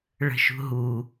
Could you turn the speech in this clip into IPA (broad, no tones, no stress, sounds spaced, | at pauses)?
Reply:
ɭ ə̤ ʃ ṳ ɦ u